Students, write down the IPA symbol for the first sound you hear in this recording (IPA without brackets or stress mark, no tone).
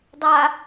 dˤ